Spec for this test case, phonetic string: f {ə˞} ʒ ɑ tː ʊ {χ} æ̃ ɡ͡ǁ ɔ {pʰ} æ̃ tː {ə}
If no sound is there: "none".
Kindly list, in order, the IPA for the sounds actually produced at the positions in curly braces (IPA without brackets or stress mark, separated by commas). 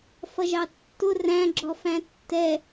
ʌ, r, f, ɛ